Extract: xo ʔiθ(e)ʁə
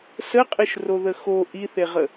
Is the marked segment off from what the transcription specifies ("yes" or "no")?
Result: no